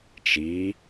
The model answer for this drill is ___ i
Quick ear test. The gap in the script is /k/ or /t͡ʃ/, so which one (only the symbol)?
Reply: t͡ʃ